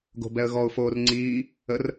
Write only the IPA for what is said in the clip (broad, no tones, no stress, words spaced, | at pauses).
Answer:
ɡo̤bɛə̯ɣɔʊ̯ foːrŋ͡ǀiː | ər